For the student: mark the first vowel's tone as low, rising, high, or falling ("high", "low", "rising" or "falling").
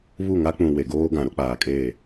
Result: falling